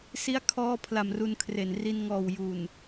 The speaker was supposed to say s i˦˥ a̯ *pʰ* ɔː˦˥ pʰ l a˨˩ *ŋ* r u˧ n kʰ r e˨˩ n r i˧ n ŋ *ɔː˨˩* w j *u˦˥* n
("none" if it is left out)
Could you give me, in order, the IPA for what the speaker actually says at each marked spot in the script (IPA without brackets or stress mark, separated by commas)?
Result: kʰ, m, ɔː˨˩, u˨˩